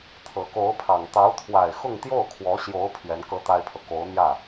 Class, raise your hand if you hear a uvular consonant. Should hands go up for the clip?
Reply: no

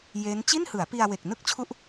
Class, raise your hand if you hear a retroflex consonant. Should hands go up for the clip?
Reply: no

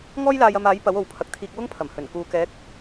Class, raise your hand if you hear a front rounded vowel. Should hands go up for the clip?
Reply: no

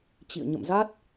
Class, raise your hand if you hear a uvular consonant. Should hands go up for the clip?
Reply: no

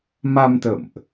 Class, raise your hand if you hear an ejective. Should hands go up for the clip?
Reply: no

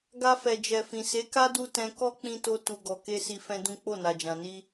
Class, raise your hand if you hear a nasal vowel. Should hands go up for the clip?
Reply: yes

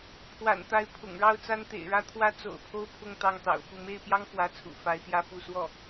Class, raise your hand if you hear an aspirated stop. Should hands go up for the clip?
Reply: yes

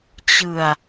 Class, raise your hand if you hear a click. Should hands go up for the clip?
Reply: no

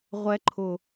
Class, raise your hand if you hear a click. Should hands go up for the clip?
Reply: yes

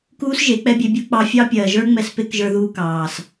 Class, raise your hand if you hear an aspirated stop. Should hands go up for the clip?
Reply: no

